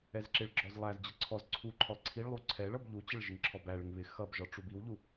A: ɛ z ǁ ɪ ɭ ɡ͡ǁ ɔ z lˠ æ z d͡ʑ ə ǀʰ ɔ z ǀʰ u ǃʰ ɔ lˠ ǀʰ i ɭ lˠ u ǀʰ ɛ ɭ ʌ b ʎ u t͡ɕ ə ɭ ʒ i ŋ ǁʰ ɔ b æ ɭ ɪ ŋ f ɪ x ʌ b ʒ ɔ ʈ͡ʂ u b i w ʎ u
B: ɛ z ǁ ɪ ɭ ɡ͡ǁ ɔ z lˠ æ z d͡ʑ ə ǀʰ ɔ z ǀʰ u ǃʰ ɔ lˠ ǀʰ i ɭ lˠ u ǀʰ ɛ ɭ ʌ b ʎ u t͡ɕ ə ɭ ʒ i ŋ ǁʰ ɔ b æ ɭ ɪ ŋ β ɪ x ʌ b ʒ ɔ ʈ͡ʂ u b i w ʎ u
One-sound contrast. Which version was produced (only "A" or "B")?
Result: B